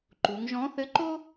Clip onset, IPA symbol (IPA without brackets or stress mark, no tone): ǃ